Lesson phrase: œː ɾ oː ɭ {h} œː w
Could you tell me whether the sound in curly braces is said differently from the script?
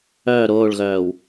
yes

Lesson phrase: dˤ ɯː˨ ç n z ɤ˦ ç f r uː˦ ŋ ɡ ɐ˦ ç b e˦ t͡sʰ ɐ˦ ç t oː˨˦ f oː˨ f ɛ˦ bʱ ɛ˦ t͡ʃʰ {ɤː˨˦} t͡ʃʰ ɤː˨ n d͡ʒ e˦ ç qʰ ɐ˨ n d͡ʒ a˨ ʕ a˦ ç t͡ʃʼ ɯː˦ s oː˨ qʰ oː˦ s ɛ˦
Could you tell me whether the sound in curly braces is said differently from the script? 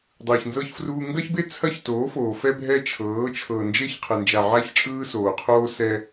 no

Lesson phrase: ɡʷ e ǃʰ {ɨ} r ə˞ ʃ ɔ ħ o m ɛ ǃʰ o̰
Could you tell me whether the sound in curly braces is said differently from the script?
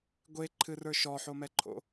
no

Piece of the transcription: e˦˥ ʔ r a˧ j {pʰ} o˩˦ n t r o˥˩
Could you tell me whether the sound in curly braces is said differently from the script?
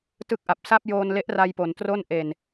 yes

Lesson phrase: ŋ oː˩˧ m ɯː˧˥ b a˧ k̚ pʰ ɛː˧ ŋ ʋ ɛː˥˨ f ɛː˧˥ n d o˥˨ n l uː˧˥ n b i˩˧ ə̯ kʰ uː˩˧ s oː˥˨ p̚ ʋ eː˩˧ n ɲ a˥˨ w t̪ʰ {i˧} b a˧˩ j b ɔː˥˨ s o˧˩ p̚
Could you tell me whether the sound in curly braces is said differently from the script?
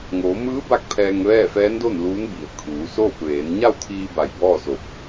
yes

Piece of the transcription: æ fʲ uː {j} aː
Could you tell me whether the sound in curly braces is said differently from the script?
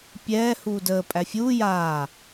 no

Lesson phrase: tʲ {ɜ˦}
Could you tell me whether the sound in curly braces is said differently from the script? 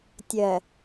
yes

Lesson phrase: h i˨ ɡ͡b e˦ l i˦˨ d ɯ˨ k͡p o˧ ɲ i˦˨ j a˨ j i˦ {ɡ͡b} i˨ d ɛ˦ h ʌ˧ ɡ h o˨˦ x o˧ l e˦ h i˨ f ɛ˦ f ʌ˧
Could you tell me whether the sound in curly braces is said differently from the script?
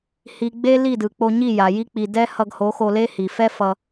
yes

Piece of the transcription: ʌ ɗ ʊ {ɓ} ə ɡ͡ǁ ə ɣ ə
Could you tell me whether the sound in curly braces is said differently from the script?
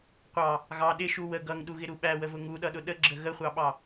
yes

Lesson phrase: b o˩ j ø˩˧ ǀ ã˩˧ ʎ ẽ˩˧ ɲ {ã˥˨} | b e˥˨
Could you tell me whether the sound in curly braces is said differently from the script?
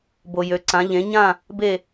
no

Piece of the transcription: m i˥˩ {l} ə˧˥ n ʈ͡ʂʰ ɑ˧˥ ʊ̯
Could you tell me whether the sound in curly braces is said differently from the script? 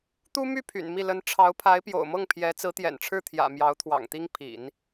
no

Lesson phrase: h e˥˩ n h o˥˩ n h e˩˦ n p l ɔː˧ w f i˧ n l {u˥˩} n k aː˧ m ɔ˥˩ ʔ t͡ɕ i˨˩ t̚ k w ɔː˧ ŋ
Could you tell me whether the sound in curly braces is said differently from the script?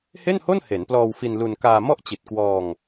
yes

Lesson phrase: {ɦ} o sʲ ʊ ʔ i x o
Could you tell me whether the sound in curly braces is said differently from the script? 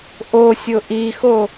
yes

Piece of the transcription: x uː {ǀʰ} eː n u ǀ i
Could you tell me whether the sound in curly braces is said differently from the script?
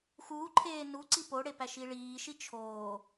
yes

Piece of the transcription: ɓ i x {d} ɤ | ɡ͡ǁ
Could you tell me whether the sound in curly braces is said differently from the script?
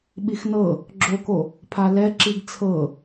yes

